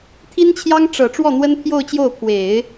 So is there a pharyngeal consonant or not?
no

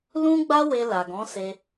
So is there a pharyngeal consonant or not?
no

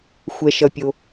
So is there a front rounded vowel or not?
no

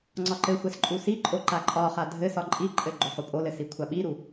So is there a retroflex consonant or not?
no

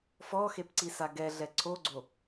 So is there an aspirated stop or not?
yes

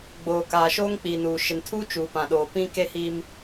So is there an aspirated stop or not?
yes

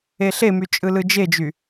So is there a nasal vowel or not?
no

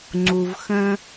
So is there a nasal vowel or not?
yes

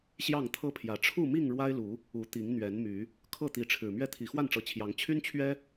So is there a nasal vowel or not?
no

